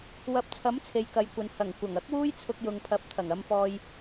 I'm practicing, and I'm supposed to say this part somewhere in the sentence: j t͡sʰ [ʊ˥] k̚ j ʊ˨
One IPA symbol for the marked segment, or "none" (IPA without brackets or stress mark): ʊ˧